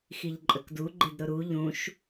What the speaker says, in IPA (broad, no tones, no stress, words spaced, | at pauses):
xiʎǃʼəkdu ɡ͡ǃedɾʊɾu ʎũʃ